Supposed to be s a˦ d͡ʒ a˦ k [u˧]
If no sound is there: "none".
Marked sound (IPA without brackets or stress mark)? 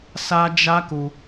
u˧